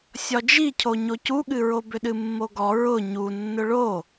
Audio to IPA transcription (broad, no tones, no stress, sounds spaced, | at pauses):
sʲ ɒ d͡ʒ i cʰ o ɲ o c u ɠ ɨ ɹ o b ʏ ɗ ɨ mː o ɡ ɔ ɹ ʊ ɲ u nː ʊ ɭ o